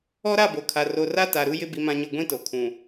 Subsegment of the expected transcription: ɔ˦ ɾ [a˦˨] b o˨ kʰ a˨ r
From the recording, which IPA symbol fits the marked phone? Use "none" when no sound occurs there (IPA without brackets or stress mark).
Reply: a˦˨